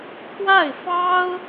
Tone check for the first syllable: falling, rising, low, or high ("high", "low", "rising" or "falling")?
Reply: falling